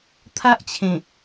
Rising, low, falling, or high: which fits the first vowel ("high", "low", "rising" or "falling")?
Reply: high